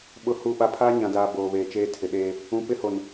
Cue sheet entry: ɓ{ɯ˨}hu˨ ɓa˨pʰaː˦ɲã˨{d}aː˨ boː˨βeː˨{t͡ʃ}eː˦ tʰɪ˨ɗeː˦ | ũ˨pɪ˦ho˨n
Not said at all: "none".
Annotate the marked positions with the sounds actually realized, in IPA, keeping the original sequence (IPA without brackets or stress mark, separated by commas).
ʊ˨, d, t͡ʃ